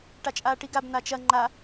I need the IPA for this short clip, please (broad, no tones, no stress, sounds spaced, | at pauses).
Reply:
ʈ a t͡ʃʼ aː ʈ i ɡ a b n̪ a t͡ʃ ɐ ŋ͡ǃ a